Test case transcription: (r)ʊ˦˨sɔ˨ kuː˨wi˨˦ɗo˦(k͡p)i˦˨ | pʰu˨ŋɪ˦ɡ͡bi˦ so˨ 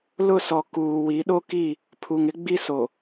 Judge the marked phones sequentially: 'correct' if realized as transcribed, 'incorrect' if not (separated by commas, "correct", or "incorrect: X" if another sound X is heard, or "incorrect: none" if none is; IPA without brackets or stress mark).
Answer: incorrect: l, incorrect: k